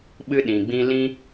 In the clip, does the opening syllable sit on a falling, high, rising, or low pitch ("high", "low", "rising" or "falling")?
high